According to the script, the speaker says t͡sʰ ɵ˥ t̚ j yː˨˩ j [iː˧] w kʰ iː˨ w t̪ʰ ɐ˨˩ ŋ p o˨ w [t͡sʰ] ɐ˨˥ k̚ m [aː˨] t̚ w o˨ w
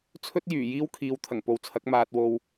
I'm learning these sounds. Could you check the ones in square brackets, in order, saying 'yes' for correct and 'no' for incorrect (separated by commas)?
no, yes, yes